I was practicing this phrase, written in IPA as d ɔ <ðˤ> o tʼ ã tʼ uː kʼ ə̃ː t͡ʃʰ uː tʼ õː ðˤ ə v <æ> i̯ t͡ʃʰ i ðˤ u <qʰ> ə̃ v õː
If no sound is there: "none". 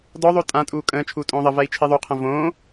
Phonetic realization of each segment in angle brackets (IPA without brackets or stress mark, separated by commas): ðˤ, æ, qʰ